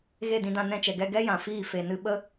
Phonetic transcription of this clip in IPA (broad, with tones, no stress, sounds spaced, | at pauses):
ɣ e˦˨ d ĩ˧ d ã˧ n ɛ̃˧ t͡ʃ ɛ˨ ɡ ɛ˧ ɡ ɛ˦ j ã˨ f iː˦˨ f e˨ n ɨ˧ ɓ ə˦